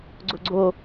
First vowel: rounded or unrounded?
rounded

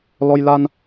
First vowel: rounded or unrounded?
rounded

